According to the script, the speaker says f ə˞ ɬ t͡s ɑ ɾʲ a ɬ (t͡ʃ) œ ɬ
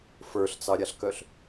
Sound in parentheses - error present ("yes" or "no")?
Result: yes